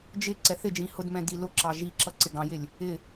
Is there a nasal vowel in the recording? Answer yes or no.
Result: yes